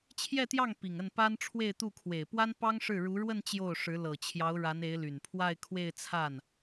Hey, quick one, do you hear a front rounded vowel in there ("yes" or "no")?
yes